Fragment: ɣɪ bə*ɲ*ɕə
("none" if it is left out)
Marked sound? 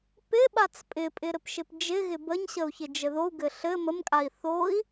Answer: ɲ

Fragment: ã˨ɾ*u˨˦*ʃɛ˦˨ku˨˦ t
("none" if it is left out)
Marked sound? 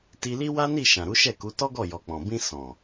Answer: u˨˦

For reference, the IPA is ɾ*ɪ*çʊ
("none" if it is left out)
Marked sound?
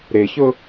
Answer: ɪ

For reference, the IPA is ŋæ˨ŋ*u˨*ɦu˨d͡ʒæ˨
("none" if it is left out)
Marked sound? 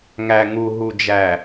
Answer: u˨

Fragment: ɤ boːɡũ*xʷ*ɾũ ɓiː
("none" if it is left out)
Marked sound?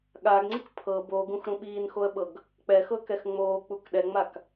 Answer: x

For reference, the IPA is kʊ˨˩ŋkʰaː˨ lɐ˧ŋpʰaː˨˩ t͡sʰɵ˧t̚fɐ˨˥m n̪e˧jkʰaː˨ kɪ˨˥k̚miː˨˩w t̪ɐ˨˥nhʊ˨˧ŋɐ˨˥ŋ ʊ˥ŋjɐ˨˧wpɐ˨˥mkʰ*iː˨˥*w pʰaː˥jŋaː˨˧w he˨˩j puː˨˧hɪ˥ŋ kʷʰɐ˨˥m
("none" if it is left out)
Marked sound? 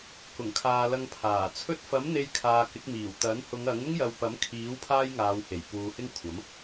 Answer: iː˨˥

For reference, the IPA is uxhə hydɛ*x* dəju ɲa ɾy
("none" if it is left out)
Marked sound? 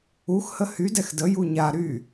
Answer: x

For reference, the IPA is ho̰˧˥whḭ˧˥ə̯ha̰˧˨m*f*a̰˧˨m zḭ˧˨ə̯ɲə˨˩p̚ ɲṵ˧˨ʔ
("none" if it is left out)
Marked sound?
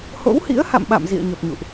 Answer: ɓ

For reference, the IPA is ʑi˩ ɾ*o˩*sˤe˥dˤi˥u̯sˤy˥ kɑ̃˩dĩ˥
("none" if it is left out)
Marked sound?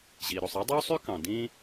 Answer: o˩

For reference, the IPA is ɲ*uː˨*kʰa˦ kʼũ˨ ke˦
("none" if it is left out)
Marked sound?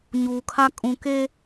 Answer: uː˨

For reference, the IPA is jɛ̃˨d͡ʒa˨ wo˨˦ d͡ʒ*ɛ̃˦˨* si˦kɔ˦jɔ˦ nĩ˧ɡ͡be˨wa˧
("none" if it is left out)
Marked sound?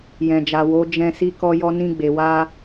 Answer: ɛ̃˧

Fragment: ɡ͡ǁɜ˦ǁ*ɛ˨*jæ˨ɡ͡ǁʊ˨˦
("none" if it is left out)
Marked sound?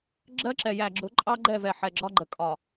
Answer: ɛ˨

